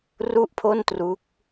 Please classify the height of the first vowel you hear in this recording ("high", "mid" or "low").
high